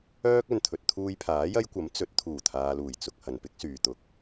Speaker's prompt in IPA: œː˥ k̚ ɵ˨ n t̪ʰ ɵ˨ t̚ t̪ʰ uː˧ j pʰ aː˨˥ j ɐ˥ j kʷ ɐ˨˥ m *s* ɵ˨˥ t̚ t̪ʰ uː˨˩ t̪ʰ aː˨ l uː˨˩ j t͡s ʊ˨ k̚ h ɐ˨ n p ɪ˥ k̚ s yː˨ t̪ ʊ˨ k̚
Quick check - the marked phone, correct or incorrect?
incorrect